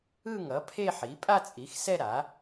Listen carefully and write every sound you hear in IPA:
ɯ˥˧ ŋ ʌ˩˥ pʰ e˥˧ ħ i˩˥ pʼ a˥˧ t͡sʼ i˩˥ x s ɛ˥˧ ɾ a˩˥

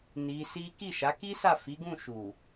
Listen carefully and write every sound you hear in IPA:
n i˧ s i˦ k i˦˨ ʃ a˨˦ k i˦ s a˦˨ f i˨˦ ɡ ũ˦˨ ʃ u˨

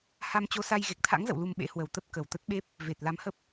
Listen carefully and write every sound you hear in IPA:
h a˧ m t͡ɕ o˧ s a˧ j ɣ e˨˩ k̚ t̪ʰ a̰˧˥ ŋ z ə̰˧˨ w l u˧ m ɓ ḛ˧˥ h w ə˨˩ w t̪ ə˦˥ p̚ k ə˨˩ w t̪ ə˦˥ t̚ ɓ e˦˥ p̚ | v e˨˩ t̚ l a˨˦ m h ə˦˥ p̚

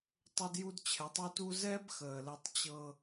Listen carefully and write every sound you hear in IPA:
tˤ ɤ˦ d j u˦ d t͡ɕʰ ɛ˨˦ tˤ u˦ t u˦ z ɛ˦ b x əː˨ l ɛ˦ tˤ t͡ɕ ɤ˦

